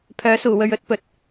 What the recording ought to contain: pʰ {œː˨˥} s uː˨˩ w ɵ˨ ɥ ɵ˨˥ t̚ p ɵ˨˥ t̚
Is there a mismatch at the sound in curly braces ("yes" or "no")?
no